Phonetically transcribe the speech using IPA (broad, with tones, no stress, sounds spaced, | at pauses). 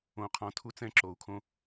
õ˧ qʰ ɔ̃˧ tʰ u˥ t͡s ɛ̃˥ ǁ o˧ u̯ kʰ õ˥